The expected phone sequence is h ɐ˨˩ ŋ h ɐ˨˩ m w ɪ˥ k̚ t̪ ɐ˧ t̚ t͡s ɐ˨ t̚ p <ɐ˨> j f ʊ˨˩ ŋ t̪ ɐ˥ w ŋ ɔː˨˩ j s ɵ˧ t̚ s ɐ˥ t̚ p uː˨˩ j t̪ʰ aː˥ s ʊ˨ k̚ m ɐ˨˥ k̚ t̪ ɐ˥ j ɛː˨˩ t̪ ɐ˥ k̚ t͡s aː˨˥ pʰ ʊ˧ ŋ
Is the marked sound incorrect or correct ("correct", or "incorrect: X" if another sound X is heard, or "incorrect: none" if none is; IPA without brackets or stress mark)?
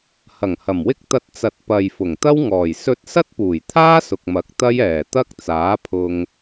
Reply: correct